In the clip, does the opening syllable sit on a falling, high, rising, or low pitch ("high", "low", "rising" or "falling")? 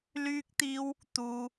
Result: high